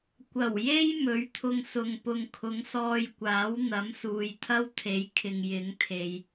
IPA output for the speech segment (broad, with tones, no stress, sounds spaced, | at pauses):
kʷ ɐ˨˩ w j e˥ j m ɵ˨˥ ɥ t̪ʰ ʊ˧ ŋ s ʊ˨ ŋ p ʊ˨ ŋ kʰ ʊ˨˥ ŋ s ɔː˧ j kʷ aː˨˥ w n̪ ɐ˨˥ m s uː˨ j t̪ʰ ɐ˥ w t̪ʰ e˨˥ j kʰ ɪ˨ ŋ j ɪ˨˥ ŋ t̪ʰ e˨ j